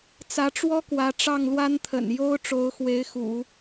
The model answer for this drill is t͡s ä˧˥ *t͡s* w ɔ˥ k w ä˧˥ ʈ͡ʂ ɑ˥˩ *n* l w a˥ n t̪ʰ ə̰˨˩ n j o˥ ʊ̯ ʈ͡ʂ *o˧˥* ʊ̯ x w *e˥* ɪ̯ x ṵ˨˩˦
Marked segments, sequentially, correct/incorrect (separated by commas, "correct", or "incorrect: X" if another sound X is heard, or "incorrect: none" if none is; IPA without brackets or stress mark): incorrect: ʈ͡ʂ, incorrect: ŋ, correct, incorrect: e˧˥